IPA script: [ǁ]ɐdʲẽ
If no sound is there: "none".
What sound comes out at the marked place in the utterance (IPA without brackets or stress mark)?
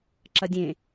ǁ